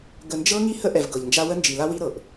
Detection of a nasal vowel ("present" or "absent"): absent